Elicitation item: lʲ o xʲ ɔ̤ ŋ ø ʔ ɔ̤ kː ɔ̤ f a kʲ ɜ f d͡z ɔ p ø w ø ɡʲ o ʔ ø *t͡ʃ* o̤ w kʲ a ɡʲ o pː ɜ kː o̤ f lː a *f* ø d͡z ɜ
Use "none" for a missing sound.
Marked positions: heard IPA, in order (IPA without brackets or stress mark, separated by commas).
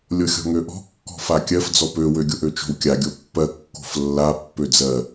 t͡ʃ, pː